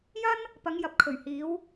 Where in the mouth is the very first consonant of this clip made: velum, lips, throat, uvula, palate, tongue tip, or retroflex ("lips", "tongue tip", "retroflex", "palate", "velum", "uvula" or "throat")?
palate